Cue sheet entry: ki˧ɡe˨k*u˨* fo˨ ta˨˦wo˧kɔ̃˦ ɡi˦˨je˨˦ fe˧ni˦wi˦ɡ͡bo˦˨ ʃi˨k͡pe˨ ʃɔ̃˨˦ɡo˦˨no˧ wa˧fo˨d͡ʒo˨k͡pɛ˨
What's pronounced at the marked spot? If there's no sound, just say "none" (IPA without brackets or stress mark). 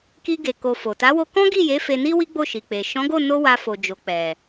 o˨